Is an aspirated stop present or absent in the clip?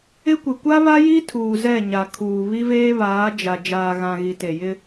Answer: present